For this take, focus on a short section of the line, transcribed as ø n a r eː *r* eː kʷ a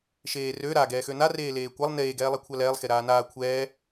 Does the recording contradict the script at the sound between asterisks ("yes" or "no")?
yes